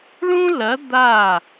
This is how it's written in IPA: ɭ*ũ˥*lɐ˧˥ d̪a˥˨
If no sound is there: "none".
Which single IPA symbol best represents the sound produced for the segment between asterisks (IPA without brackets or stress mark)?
ũ˥